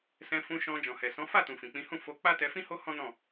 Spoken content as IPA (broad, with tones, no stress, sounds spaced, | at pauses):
s ɛ̃˧ f ũ˧ ʃ ɔ̃˧ d͡ʒ ɔ̃˨ h ɛ˨ s ɔ̃˨˦ f a˦˨ t ũ˨ f ĩ˨ k͡p ĩ˨˦ h ũ˦˨ f o˧ k͡p a˦ t ɛ˧ f ĩ˦ h o˦ h ɔ̃˦ n ɔ̃˦˨